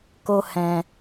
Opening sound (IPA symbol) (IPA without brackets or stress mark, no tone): k